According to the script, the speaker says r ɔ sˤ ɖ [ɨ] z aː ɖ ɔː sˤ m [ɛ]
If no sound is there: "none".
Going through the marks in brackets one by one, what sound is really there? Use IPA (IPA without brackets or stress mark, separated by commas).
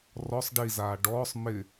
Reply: i, ɪ